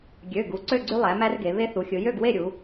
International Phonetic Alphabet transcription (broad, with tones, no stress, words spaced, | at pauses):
ɡʲø˩˧˩ ɡu˩˧ǀø˥˨ɡ͡ǀy˦ lˠæ˩˧ mæ˦rɡe˩˧ βe˦θu˩˧xʲɯ˩˧ jø˥˨ɡwe˥˨ɾʲu˩˧